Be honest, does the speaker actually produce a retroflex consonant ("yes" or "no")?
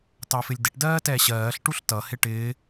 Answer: yes